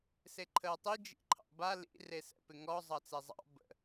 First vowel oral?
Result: yes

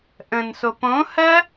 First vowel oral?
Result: no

